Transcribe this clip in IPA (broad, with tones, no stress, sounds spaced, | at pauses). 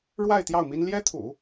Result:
ɻ w a˥˧ ɪ̯ t̪ j ɑ˥˩ ʊ̯ m i˥ n l j ɛ˥ t̪ʰ ṵ˨˩˦